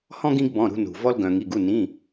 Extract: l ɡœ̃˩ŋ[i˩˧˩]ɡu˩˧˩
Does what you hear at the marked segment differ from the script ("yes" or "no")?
no